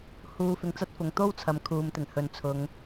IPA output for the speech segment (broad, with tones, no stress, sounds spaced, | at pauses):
h uː˧ f ɪ˧ ŋ t͡s ɐ˥ t̚ f ʊ˨ ŋ t̪ o˥ w t͡sʰ ɐ˨˥ m kʰ uː˨ m t̪ ɪ˨˩ ŋ h ɵ˨ n t͡sʰ ʊ˨˧ ŋ